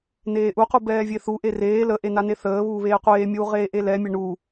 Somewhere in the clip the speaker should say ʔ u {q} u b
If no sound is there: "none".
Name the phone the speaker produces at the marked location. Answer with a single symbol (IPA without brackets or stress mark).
q